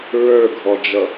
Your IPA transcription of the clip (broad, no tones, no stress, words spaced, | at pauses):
ɹə˞ɡʱɔd͡ʒʌ